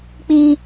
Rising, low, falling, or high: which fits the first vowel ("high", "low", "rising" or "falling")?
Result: high